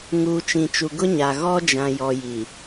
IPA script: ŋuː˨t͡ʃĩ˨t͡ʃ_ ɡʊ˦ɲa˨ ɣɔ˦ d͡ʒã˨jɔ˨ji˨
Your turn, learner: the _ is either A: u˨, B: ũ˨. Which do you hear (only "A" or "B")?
A